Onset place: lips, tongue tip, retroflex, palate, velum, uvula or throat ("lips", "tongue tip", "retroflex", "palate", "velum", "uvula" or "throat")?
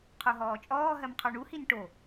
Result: uvula